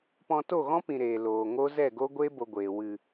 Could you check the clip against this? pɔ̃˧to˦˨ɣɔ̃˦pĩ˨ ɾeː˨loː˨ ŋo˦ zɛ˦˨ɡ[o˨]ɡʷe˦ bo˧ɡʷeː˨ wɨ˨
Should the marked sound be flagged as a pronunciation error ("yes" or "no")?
yes